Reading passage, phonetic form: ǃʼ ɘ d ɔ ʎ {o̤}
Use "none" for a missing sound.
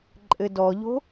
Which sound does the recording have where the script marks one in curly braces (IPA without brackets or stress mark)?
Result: o̤